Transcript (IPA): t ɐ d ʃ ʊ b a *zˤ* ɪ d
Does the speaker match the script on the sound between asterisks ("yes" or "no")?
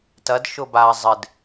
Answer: yes